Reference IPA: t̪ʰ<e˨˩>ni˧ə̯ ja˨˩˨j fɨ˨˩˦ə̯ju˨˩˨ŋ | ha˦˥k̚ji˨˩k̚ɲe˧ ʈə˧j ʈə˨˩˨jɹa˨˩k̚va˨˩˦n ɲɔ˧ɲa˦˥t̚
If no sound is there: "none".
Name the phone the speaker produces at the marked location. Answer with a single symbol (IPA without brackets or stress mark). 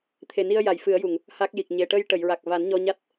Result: e˨˩